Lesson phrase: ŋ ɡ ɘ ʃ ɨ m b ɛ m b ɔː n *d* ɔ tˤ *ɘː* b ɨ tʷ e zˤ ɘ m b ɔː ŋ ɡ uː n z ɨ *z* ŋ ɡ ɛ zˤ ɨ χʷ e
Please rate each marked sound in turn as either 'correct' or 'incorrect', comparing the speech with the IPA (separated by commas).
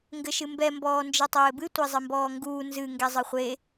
incorrect, correct, incorrect